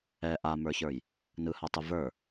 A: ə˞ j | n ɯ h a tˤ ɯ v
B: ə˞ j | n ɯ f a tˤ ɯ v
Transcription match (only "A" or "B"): A